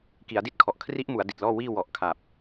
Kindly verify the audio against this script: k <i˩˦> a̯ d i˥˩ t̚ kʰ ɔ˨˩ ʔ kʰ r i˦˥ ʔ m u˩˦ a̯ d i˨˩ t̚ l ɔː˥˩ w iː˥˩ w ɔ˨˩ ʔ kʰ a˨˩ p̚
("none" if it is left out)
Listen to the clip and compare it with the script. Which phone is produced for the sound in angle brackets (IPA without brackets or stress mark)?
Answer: i˩˦